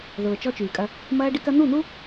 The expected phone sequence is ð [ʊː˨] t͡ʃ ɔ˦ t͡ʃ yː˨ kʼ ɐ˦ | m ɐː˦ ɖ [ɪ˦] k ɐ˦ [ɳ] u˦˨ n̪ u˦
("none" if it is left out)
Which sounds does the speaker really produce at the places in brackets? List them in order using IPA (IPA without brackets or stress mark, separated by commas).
ʊː˨, ɪ˦, n̪